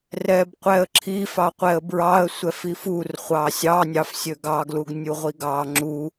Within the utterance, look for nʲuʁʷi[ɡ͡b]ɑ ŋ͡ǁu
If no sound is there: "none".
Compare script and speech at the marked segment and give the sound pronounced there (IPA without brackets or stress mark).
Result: ɡ